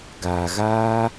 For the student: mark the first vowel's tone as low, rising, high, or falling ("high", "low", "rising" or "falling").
low